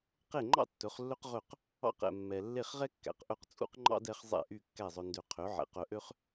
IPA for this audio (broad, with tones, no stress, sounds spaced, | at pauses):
q e˥˩ ŋ͡ǃ ɑ̰˥ tː ɵ˩˥ χ lː ɵ˥ q ʁ ɵ˥˩ q | ɑ̰˥˩ q ɛ̰˩ mː ɛ˩ lː e˥˩ χ ʁ ɛ˥ kː æ̰˩ q ʔ ɵ˥˩ q t͡sʼ ṵ˥ q ŋ͡ǃ ɑ̰˥ d ɛ˩˥ χ zˤ ɛ̰˥˩ ʔ y˥˩ kː æ˥˩ zˤ ɵ˧ n d ø˧ qʰ ø˩˥ ʕ ɛ̰˩ q œ˧ ʔ ø˥ χ